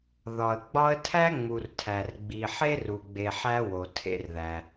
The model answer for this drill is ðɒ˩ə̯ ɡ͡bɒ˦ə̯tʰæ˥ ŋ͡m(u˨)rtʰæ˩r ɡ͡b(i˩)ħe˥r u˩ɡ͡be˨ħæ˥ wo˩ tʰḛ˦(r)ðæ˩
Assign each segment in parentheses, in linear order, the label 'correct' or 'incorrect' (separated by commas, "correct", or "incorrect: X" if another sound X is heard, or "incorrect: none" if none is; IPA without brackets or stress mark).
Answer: correct, correct, correct